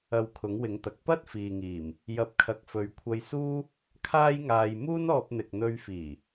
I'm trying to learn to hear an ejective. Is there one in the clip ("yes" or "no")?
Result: no